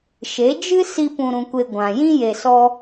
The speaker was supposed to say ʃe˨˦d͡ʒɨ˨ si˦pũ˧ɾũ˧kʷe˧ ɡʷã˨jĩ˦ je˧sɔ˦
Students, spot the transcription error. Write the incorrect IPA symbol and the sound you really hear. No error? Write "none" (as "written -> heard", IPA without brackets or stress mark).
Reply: ɨ˨ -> ɨ˦